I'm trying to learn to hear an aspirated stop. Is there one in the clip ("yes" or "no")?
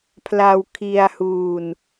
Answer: yes